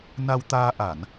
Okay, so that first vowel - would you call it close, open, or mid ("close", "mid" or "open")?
open